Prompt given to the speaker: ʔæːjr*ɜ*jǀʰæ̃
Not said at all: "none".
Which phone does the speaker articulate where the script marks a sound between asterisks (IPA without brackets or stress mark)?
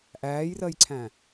ɜ